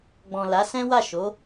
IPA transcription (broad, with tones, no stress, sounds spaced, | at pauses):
ɡ͡b ɔ̃˨ l a˨˦ s ɛ̃˦ w a˦˨ ʃ o˨˦